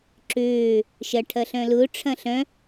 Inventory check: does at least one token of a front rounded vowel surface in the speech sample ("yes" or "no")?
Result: yes